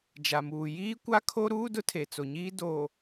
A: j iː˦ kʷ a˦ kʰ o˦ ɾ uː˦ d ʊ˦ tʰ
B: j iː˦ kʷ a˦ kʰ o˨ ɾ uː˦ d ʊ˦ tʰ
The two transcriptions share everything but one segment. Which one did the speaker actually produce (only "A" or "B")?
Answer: A